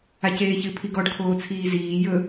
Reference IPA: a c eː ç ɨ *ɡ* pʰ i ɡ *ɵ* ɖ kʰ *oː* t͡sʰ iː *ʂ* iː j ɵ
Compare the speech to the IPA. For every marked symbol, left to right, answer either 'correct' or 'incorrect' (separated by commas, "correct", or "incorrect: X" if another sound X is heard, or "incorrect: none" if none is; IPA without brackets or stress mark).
incorrect: none, incorrect: ɔ, correct, incorrect: z